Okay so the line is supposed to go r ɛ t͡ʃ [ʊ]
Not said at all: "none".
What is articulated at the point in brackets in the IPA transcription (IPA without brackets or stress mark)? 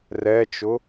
ʊ